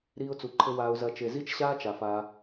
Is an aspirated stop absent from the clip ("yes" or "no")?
no